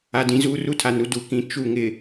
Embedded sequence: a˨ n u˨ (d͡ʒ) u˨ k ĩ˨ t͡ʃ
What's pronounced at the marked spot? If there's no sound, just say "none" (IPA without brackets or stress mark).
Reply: d